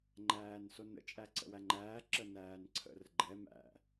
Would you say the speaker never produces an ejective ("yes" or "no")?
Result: no